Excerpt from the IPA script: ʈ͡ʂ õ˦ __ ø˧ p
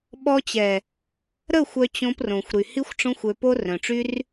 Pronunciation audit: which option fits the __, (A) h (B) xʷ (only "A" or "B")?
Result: B